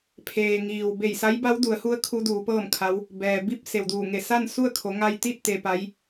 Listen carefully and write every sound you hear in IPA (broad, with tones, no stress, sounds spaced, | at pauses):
pʰ eː˩ ŋ iː˩ w b e˧˩ j s a˧˥ j b a˧˥ w d u˩˧ ə̯ h u˧˥ ə̯ kʰ u˧˥ d uː˩˧ p ɤː˥˨ m kʰ a˧˥ w | b ɛː˩ b i˥˨ p̚ s e˩ w d uː˧˩ ŋ e˧˩ s a˥˨ n s u˥˨ ə̯ kʰ o˩˧ ŋ a˧ j t̪ i˥˨ t̚ t̪ e˧ p a˧˥ j